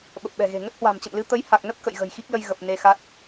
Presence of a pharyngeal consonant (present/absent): absent